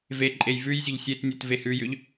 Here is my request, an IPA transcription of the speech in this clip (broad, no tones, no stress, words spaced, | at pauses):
ve ǃʼejvʉjzʲɵʎ sʲetnʲɵt vehʉjʏʎ